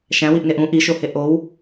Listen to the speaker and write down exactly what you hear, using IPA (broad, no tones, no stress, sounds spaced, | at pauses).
ʃ æ̃ w i ʔ n e ʔ ũ ʔ i ʃ o h e ʔ o w